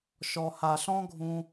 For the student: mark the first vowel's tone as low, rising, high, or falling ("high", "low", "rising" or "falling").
low